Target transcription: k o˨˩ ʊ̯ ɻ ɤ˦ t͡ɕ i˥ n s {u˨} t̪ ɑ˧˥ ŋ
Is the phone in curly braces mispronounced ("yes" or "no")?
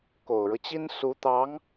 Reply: yes